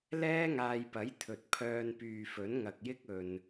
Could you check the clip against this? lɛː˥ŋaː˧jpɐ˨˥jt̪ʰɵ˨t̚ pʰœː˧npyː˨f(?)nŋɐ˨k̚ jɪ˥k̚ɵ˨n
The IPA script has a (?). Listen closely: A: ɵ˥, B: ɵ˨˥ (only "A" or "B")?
B